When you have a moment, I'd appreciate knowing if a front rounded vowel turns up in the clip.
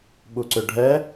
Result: yes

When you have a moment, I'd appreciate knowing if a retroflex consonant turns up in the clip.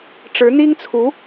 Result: yes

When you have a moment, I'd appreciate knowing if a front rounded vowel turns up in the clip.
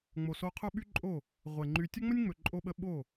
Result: yes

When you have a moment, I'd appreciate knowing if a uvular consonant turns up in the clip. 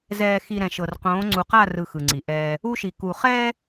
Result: yes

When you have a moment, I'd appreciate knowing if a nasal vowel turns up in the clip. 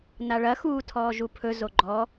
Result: no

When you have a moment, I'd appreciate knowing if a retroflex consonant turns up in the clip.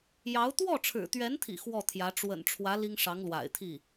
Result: yes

